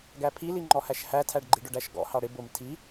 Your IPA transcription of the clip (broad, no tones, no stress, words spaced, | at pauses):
ɡæpʰili ŋ͡ǃɔhæʃhætʰæɖ ɡ͡ǃiɖʊɖæʃɡɔ̰ hɑɽɪ bʊm tʰi